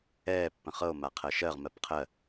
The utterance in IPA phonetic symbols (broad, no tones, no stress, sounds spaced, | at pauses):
ɛː pː ə̃ χ ɤ o̯ m a qʰ ɜ ʃ ɜ ʁ m ɜ p qʰ ɜ